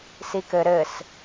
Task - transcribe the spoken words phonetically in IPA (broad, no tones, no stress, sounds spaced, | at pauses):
s i k ɘ ɾ ɘ s